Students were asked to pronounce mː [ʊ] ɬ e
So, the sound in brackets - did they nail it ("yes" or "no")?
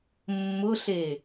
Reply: yes